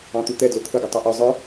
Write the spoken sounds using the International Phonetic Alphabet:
ɑ̃ t̪ u t̪ ɛ d l ʊ t̪ʰ ə ɡ ʌ tˤ ɛ ʔ ə˞ zˤ ə˞

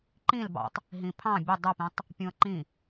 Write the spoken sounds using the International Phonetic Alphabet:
ǃ ĩ l b ɑ̰ tˤ | ɦ ĩ pʰ ɑ̃ bʲ ə dˤ u p ĩ tˤ | pʲ ũ ə̯ ǃ ĩ

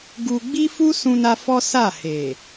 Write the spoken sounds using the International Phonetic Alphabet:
ɡ u˧ ɡ͡b i˦ f u˦ s ũ˧ n a˧ f ɔ˦ s a˦˨ h e˨

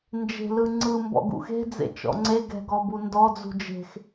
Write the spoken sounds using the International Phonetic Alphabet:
n d͡ʒ e̤ l ɯ ŋ͡ǀ ɯ m b ɔ̰ ɡ ṵ x e̤ d͡z ḛ t͡ʃ ɔ̰ ŋ͡ǀ e ɡ ɛ̤ ɡ ɔ b u n d ɔ d͡z ṳ d͡ʒ e̤ x

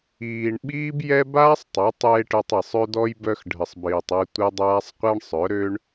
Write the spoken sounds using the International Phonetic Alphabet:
iː˨ ɳ ɓ iː˦ b j ɛ˦ b aː˦ sˤ tˤ a˨˦ tˤ j e˧ ʈ œ˧ tˤ i˨ sˤ ø˦ d ɔ˦ j b œ˧ x ɖʱ ə˨ sˤ b iː˨ tˤ ɛ˧ tʷ ɛ˦ dˤ aː˦ sˤ qʷ ɛ˦ ɳ sˤ œ˨˦ ɾ ø˦ ɳ

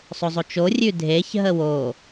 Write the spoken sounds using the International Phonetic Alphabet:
sˤ o zˤ o t͡ʃ o rʲ ʉ dʱ e ç ɦ ə w o

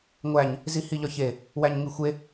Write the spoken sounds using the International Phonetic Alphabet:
ŋʷ æ ɲ | z i h i ʎ ɒ ç e | w æ ɲ ŋ i xʷ e

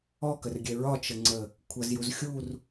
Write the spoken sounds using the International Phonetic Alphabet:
ɔ k ə r ɡʲ ɛ ɹ ɒ t͡ʃ ə ŋ͡ǀ ə | kʷʰ ʌ z j u z xʲ u r

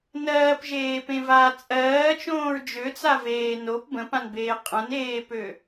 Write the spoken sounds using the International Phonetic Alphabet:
n ɜː p ʒ eː p ẽ v aː t͡sʼ ɜː t͡ʃ õː ɹ d͡ʒ ø t͡s a v eː n o p b ə̃ p ã n b eː qʼ ə̃ n eː p ø

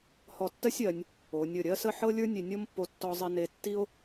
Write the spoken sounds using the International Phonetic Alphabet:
h ɔ˧˩ tː ɜ˥ sʲ ɜ˩˧ nʲ | o˩˧ nʲ ə˧˩ ɾʲ ɜ˥ s ə˥˧ ħ ɤ˥ lʲ ə˞˥ nʲ e˧ nʲ ɤ˥ m pː o˧ tː ɔ˧ zˤ e˧ n e˧ tː i˥ o̯

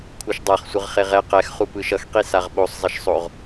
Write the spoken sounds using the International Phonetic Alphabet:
kʷʰ ɯ ʃ dˤ a χ sʷ ɯ ʁ χ e ʁ ɛ q ɛ x χ u p ɯ ʃ ʌ x q i s a ʁ ɓ o sˤ zˤ ʌ ʃ sˤ o ʁ

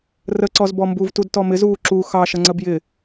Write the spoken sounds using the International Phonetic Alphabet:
r ə ǀ ɔ z b ɔ m b u v t u d t ɔ m ɪ z uː ǁ u x ɑ ʃ ə ŋ͡ǀ ə b j ɪ

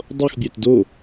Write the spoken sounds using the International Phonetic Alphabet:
dˤ o x bʲ æ t d o

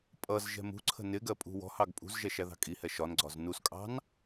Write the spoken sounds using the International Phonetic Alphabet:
pʼ ʌ z ʒ ɛ̤ m ṳ ǀʰ ə̤ n ɪ ɡ ɜ pʼ ṳ w ɔ̤ h ɑ ɡ pʼ ṳ z ʒ ɛ ʃ æ ð ɑ̤ kʼ i h ɛ ʃ ɒ n ɡ͡ǀ ɒ z n u s kʼ ɑ̤ n

